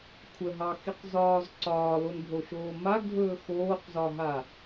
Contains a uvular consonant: yes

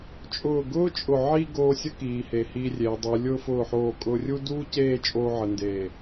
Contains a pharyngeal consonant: yes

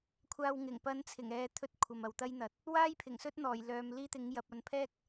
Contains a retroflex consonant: no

